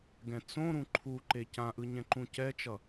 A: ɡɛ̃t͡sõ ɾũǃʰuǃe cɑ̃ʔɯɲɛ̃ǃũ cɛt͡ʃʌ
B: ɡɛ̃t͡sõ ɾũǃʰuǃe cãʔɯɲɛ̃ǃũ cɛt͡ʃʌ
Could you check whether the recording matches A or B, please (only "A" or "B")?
B